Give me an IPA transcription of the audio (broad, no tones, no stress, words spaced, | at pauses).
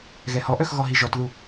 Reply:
ɣɛhɔʔœx ɣɔɦiʒɔtðu